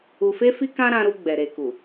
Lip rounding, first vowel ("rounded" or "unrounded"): rounded